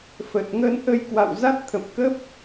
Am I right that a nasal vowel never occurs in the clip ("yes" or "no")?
yes